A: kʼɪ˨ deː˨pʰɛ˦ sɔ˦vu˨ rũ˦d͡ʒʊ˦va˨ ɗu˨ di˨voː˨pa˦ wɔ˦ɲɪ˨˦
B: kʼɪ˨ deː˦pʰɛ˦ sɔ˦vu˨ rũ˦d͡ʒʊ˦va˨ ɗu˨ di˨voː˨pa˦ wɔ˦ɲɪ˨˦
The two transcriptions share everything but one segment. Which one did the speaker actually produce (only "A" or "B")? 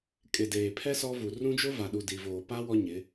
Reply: A